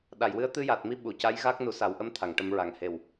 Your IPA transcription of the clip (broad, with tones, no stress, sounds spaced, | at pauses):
ɗ a˨˩˨ j w ɨ˧˥ ə̯ t̪ ɨ˧ j a˨˩ t̚ m i˧ ɓ u˨˩˨ c a˧˥ j ɣ a˦˥ k̚ n u˨˩˦ s a˨˩˦ w ʔ ə˧˥ m t̪ʰ a˨˩˨ ŋ ʈ ə˨˩˦ m ɹ a˨˩ ŋ h e˨˩ w